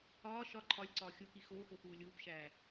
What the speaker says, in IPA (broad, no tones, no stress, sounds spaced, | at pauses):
ɒː ʃ ɒ ǃʰ ɒ lʲ ǀ ɒː xʲ o k i x oː x o x uː lʲ uː p ʃ æː